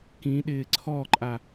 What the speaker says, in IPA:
kĩɗɪː ǀʰɔǃʼa

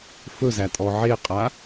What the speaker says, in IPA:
fɵzætʼɔ ʕeqʼa

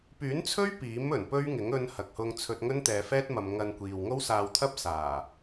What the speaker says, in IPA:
pyː˨˥nt͡sʰɵ˥ɥ piː˨˥m ɵ˨˩npɵ˥ɥŋɪ˨˥ŋ ɵ˧n hɐ˨k̚hʊ˧ŋt͡sʰɵ˧t̚ŋɵ˥n t̪ɛː˨fɛː˥t̚mɐ˨m ŋɐ˧nkʷiː˨w ŋo˥wsaː˧wt̪ʰɐ˥p̚ saː˨˩

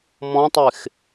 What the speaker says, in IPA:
mɔ̃tˤex

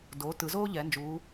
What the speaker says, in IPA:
do˩˧ tɯ˩˧zoː˥ʎɛ˩˧nd͡ʒuː˩˧

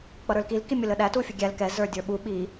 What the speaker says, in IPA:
k͡pʌɾə˞lkil kimʲʊləɗæ tufʲəɡʲæl kɛ zə˞dʲə˞ɓu ɓi

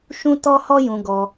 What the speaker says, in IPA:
ʃũ˦tɔ˦hɔ˦ jũ˧ɡɔ˧

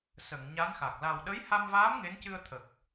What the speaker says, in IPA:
sə˨˩˨ŋ ɲa˧˥nxa˨˩k̚ la˨˩wɗə˧˥jha˧mvaː˧˥m ŋe˧˥ncɨ˧ə̯t̪ʰə˨˩k̚

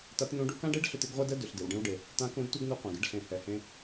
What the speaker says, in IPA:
ta˧˥tnũ˧˥ɖu˧˥ kã˥ɖe˥ɖɬʏ˧t ɪ˧˥ɡʁʷɛ˥dɛ˥ dʏ˩˧ɬdɪ˩˧w ɖẽ˧wɖe˩ | tã˧˥kũ˧˥dtʷɛ˥ɡnu˧ qʷã˩ɡɪ˧˥ɖɬẽ˩˧ hɛ˩hẽ˧

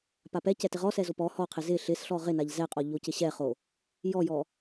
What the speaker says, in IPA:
papɛ cɛtɪʁɔsɛ zopɔ hɔqʰɪ zɪ ɬɪs ɬɔʁɪ naʎzɛqʼɔ ʎocɪɕɛχo | jɔjɔ

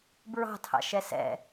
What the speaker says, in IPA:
bɹɑ̤tʰɑ̰ʃɛ sɛ̰

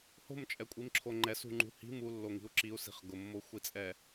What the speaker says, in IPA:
ho̤mt͡ʃʼɛkʷʼimǁʰo ŋ͡ǃɛsṳŋ͡ǃṳ hi̤ mulːoŋi̤u̯ ǁiu̯si̤χ ɡʊmːoxʷit͡sʼɛ

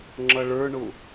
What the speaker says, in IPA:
ŋ͡ǁʌɭə˞ɳʊ

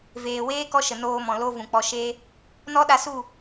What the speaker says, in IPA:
veː˨weː˦ kɔ˦ʃə˨noː˧mɔ̃˨ lo˧ vũ˨k͡pɔ˧ ʃe˦ | nɔ˦ɗa˧su˦˨

